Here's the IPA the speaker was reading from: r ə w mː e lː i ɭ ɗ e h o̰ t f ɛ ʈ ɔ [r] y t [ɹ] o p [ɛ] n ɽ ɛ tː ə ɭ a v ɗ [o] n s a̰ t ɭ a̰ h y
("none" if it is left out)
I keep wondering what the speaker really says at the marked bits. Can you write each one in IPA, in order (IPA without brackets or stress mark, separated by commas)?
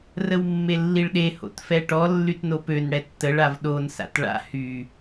lː, n, ø, o